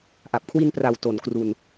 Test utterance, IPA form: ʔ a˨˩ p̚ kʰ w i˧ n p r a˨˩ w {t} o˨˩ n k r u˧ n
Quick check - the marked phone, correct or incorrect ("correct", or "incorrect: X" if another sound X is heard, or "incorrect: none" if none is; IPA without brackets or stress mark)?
correct